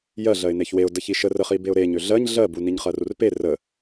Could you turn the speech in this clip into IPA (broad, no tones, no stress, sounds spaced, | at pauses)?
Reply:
j ɜ ɮ ɜ ɪ̯ n e ç w e ʊ̯ d ə ç i ʃ ə r ə χ i b e ʊ̯ ɾ e ɲ ø ɮ ɜ ɲ ɮ ɜ b u n i ɲ χ ɜ r u r p e r ə